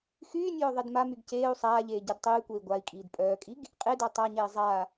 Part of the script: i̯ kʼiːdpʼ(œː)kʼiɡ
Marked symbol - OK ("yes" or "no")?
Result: yes